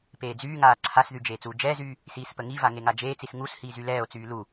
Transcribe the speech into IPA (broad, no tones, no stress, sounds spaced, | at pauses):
p eː d͡z yː ŋ aː ǀʰ a s ð y d͡ʒ eː t͡s uː d͡ʒ ɛː z yː | s iː s p ə ŋ i v a ŋ e ŋ a d͡ʒ eː t͡s i s ŋ u s h iː z y l ɛː o̯ t͡s yː l u